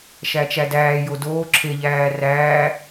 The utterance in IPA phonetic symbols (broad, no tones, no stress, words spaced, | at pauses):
ʃæt͡ʃædæː jodoː ǁʰe ʎæːræː